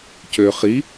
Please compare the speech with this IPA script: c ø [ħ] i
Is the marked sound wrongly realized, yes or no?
yes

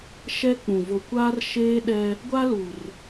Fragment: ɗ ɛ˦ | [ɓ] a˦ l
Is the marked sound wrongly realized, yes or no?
yes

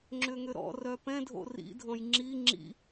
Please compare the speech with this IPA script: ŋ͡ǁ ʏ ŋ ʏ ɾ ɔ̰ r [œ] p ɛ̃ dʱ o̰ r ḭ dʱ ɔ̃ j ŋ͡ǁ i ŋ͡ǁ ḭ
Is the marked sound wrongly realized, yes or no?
no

